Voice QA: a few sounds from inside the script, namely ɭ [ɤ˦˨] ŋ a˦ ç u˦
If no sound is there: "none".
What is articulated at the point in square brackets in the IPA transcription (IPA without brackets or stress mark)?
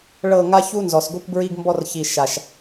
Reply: ɤ˦˨